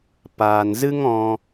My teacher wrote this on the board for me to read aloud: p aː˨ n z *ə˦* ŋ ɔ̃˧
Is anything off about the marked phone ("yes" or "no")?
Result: yes